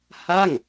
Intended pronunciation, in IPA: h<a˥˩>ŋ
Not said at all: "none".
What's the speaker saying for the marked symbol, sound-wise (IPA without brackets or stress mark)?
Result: a˥˩